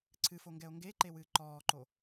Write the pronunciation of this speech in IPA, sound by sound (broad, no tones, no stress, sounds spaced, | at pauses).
ǀʰ ɨ f o ŋ ɡ ɛ o̯ ŋ ɡ e ǃ e w ɨː ǃ ɔː ǃ o